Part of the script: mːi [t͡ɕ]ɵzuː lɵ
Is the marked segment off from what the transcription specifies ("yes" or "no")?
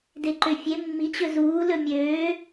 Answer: no